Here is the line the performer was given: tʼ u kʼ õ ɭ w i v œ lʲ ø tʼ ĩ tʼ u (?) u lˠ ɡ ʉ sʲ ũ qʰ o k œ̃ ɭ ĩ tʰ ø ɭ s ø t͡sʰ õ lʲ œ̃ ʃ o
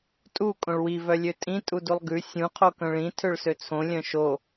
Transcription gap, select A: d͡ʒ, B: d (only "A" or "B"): B